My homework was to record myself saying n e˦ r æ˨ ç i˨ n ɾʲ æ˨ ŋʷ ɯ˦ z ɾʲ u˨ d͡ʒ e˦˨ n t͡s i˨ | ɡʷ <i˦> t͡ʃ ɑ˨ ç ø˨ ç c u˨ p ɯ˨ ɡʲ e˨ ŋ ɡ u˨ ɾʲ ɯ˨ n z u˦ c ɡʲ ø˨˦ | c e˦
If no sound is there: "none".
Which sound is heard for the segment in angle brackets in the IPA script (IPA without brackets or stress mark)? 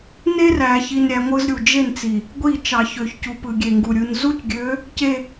i˦˨